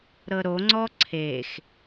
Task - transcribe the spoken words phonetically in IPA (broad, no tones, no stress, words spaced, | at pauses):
ɾɤɾo ŋ͡ǀɔǀʰex